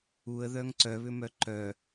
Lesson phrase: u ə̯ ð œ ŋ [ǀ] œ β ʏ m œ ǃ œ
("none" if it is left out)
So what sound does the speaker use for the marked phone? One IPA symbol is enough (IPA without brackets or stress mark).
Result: ǀ